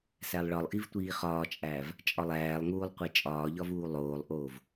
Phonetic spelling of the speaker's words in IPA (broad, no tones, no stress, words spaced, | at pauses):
sælˠɭɒlˠʔivtʷiː χɒːt͡ʃʼæːv | t͡ʃʼɒlˠæːlˠŋuːlˠ qʷet͡ʃʼɒːʎɒvuː lˠoːlˠʔoːv